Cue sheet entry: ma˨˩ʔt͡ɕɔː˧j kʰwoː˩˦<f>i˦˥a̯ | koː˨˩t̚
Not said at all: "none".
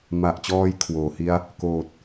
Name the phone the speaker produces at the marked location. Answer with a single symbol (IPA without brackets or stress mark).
h